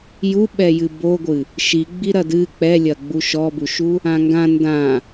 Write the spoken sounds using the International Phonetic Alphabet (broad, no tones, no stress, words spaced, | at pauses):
juɓɛjɨ boɡʷɨ | ʃi ɡ͡biɾɐdɨ k͡pɛlʲɐ ɡ͡buʃɔbuʃu | ãŋɡã ndã